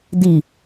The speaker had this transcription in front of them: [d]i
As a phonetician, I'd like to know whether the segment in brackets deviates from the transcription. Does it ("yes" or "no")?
no